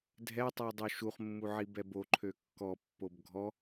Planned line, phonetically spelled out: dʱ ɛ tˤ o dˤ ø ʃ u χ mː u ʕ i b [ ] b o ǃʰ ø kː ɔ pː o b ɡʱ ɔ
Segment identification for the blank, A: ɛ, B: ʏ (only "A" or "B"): A